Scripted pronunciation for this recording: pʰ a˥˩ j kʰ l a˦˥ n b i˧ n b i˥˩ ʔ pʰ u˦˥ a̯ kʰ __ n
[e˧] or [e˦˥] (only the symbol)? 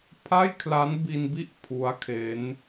e˦˥